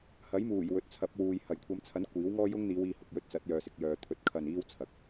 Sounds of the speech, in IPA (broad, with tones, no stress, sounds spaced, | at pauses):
h ɐ˨˥ j m uː˨˩ j w ɵ˨ t̚ t͡sʰ ɐ˨˥ p̚ w uː˨ j h ɐ˨˩ j kʷʰ ɐ˨˧ m t͡sʰ ɐ˨˥ n kʷ iː˨˥ w ŋ ɔː˥ j ʊ˥ ŋ n̪ iː˨˧ w iː˧ h ʊ˨ k̚ j ɵ˥ t̚ t͡s ɐ˨˥ t̚ j œː˨ s ɪ˨ k̚ j œː˨ t̪ʰ ɵ˨˥ t̚ kʰ ɐ˧ n iː˥ w t͡sʰ ɐ˨ k̚